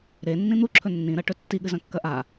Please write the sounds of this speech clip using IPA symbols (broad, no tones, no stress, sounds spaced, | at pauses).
ɾ e nː ĩ n̪ u ǁʰ ɵ nː ĩ ɾ ɐ ʈ ɵ tː i ɠ ɨ z ɐ̃ kː ɐ ʔ a